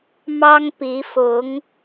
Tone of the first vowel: high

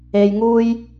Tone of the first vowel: low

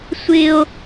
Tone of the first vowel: high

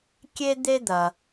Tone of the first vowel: high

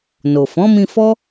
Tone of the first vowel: low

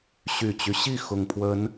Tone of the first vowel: low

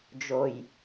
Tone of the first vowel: low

